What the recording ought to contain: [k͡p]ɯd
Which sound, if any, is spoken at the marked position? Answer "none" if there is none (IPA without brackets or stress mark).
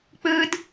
k͡p